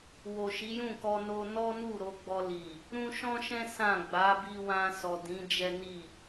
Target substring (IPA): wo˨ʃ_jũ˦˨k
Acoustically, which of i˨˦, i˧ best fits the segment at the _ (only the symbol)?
i˨˦